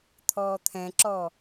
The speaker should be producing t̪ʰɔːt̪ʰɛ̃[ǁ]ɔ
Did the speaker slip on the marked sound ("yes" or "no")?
no